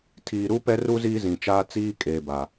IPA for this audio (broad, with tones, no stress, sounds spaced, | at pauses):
tʰ iː˨ ɾ u˦ p ɛ˦ r u˦ z iː˦ z ĩ˨ t͡ʃ aː˦ t͡s iː˦ kʼ eː˨ b a˨